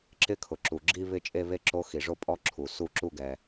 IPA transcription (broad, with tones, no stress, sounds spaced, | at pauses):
ǁ ɪ˦˥ kʰ ʊ˩ ǁ u˩ ɡ͡ǁ i˥˧ β ɪ˥˧ t͡ʃʼ e˥˧ β e˥˧ ǁ o˦˥ x i˩ ʐ o˥˧ pʼ ɔ˦˥ ǁʰ u˩ s u˥˧ ǁ u˥˧ ɡ ɛ˩